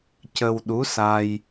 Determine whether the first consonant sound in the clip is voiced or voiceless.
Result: voiceless